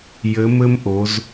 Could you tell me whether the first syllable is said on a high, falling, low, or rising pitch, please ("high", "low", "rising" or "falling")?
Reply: rising